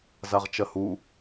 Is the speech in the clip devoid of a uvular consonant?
no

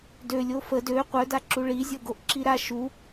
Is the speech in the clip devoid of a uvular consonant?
no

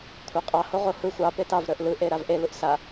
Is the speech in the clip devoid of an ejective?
no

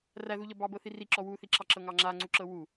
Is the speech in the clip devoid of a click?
no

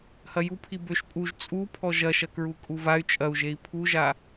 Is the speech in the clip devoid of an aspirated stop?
no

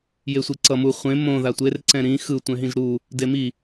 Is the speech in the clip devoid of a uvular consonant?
no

